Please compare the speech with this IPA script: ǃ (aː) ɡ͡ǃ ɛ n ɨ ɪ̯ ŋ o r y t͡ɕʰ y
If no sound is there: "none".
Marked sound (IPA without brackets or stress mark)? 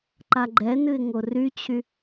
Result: a